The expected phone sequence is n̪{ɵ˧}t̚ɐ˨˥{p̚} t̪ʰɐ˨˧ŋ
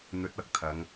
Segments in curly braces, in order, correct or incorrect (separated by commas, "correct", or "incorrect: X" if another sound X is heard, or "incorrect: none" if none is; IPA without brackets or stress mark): incorrect: ɵ˨˥, incorrect: k̚